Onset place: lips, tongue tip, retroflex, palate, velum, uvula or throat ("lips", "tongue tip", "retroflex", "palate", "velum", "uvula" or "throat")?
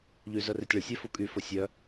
palate